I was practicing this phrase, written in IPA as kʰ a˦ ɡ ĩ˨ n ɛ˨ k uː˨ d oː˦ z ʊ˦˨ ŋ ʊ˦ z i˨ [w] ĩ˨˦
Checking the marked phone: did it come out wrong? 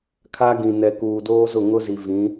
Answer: yes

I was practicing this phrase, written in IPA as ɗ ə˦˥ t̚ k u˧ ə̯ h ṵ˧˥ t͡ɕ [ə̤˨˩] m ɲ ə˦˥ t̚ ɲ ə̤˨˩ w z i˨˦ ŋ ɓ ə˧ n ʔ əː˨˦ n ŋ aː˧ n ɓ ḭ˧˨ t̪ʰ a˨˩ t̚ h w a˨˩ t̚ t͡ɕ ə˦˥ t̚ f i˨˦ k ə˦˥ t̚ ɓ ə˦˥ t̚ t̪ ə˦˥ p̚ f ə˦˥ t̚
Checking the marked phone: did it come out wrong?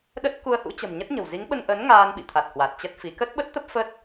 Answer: no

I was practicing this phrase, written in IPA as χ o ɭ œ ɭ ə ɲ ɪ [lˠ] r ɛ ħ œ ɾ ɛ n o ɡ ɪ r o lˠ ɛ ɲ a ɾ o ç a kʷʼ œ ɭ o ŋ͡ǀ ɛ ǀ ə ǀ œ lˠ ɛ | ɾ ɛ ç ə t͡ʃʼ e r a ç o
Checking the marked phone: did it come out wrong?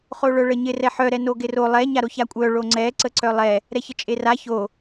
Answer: yes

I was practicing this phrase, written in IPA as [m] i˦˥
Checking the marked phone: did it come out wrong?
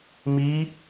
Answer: no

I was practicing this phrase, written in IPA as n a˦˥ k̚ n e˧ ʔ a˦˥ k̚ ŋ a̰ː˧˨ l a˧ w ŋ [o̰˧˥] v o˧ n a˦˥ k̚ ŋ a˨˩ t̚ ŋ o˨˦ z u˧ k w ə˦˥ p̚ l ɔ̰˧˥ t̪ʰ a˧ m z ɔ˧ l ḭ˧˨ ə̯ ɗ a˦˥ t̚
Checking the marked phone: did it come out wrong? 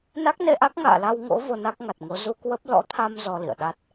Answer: no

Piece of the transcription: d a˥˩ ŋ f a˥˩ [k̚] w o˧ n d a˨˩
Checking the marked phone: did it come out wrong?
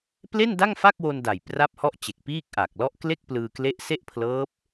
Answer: no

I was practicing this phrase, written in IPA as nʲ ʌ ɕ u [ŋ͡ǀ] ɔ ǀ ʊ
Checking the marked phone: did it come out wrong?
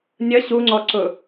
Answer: no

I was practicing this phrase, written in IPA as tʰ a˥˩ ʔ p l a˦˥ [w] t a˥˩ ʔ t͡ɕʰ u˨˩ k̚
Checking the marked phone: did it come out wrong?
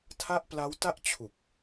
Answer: no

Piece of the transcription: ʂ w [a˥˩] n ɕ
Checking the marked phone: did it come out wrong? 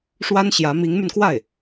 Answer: yes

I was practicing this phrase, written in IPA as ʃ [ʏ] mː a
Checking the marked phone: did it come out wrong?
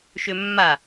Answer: no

